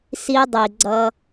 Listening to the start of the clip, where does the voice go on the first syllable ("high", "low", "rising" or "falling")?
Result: high